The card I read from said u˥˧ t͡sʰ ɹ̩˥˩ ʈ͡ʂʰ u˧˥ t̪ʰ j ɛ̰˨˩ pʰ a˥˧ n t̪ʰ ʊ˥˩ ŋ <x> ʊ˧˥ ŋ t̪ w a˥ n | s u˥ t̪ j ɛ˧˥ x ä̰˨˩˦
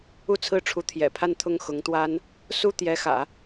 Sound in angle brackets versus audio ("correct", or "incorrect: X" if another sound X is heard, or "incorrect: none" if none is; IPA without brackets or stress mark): correct